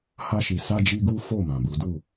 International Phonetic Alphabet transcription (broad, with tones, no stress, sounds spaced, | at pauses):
h a˦ ʃ i˧ s a˦ d͡ʒ i˦ ɡ u˦ f o˦˨ m ã˨ b u˨˦ d u˦˨